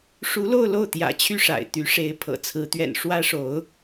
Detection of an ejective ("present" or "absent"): absent